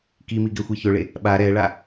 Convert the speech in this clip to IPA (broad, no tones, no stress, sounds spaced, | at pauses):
k i m i ɡ ɛ xʷ i ç ɵ ɭ e | ɓ a ɾ ɛ ɭ a